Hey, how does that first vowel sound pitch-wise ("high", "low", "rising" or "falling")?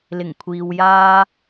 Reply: low